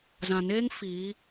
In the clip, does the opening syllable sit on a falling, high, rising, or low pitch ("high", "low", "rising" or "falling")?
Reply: low